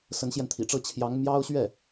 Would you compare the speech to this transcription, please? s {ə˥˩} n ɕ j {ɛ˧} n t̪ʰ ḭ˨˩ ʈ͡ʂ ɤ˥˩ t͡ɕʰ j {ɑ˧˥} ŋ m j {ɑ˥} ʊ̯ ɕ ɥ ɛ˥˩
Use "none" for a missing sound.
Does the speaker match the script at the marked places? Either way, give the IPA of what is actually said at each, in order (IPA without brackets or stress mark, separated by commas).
ə˧˥, ɛ˧, ɑ˧˥, ɑ˥